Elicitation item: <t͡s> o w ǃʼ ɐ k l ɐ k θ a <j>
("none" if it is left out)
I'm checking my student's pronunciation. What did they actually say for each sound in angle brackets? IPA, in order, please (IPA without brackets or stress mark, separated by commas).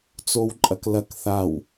t͡s, w